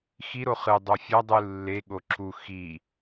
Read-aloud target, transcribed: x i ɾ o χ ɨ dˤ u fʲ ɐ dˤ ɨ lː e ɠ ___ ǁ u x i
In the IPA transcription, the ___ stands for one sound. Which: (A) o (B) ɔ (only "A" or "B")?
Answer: A